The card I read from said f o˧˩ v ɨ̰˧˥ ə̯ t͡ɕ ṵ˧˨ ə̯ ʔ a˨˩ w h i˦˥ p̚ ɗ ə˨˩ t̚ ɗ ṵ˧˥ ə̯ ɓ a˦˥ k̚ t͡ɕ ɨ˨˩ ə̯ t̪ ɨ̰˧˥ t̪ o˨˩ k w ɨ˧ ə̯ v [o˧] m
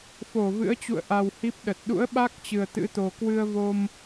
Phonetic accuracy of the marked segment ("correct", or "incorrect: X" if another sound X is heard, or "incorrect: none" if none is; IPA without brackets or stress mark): correct